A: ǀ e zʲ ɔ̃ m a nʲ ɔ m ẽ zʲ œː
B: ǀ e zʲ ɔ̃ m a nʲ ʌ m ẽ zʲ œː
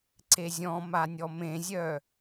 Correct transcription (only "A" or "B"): A